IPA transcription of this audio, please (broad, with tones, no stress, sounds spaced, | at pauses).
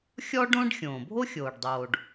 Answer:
xʲ ɔ˥ ɖ õ˥ ɖ xʲ õː˩ bʱ o˥ xʲ oː˩ ɖ dˤ oː˩ ɖ